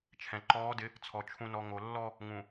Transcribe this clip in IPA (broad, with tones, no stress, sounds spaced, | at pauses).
t͡ʃʰ ɛ̃˨ ǃ ɔː˨˦ d ɪ˨˦ | t͡sʰ ɔ˨ t͡ʃʰ ũ˨ n ɔ˨ ŋ o˨ lː ɔ˦ | ŋ ũ˨